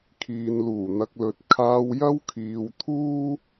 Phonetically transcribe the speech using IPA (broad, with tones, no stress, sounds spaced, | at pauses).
kʰ iː˨ n l uː˨˩ n̪ ɐ˧ k̚ l ɵ˨ t̚ kʰ aː˧ w j ɐ˥ w kʰ iː˨ w t̪ʰ uː˥